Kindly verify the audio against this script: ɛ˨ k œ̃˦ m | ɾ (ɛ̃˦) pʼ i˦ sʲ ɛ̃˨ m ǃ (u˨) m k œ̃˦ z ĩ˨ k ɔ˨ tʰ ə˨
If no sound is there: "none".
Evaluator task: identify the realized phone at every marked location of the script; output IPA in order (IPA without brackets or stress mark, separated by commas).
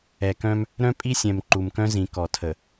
œ̃˦, u˨